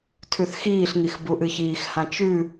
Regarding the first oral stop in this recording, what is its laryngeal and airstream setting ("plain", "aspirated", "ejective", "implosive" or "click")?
aspirated